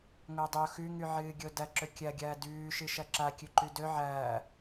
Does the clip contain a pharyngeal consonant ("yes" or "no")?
yes